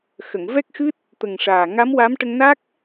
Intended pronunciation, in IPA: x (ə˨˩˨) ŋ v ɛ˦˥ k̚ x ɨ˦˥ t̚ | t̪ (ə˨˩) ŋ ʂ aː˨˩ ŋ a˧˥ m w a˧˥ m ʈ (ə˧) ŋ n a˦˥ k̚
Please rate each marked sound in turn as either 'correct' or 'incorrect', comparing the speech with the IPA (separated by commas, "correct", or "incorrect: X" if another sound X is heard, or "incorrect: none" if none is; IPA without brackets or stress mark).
correct, correct, correct